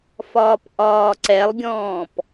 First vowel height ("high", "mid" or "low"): low